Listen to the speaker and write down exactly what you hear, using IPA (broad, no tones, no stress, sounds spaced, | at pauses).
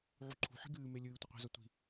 ʕ u ǃʰ ṳ ħ i̤ ɡ ɨː m e lʲ ɨː tʷ ɪ qʷ i̤ z ɒ tʷ i̤